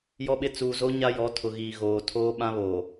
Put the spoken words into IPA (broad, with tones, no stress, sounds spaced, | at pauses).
j ɔ˦ ɓ ɪ˦ t͡s uː˨ z o˦ ɲ a˦ j ɔ˨˦ tʰ ʊ˨ ɣ iː˨ ɣ oː˨ tʰ oː˦ ɓ ã˦ β oː˨